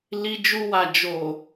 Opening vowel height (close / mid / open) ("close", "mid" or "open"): close